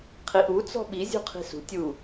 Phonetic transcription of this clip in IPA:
qʰiʔu t͡sɔ̤ɓi zʲṳqʰi̤sṳ tʲu

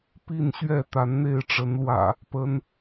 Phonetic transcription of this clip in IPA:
pi˥˨nɕɥɛ˥˨ t̪a˨˦nn̪e˥˨ɪ̯ʈ͡ʂə˨˦nlwä̰˨˩ | pə˨˦n

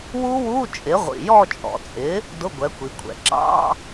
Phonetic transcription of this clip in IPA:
wu˦˥wu˧˥˧t͡ʃʼɪ˩˥ ʁʷḭ˩jɔ˦˨t͡ʃʼɔ̰˩t͡sʼɪ˩˥ | dʊ˧˥˧ɡʷɛ˩˥kʷi˩˧kʷʰɛ̰˩ ǁɑ̰˧˥˧

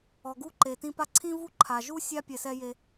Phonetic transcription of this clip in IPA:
ɔ˩ɡu˥ǃe˩tĩ˦ pa˦ǀʰĩ˥vu˥ ǃʰa˩ʒu˥ sʲa˥ pʲɛ˨sɛ˦ je˨

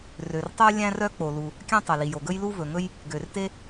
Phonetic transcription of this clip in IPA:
rø˩rtˤø˥ lʲæ̃˥rœ˥ k͡po˩lu˩ | kʲæ̃˥ tˤø˩li˩jo˩ ɡɵ˥jlu˥ vɵ˩ŋɵ˥j | ɡø˩rte˥

